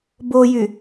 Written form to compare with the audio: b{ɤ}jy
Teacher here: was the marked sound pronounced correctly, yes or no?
no